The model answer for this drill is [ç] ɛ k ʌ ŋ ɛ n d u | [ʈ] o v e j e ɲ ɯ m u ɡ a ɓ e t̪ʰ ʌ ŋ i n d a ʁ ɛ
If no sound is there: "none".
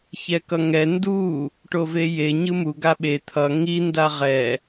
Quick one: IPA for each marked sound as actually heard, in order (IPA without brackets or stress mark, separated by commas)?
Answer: ç, ʈ